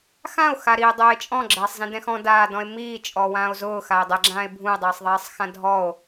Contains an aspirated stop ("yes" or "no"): no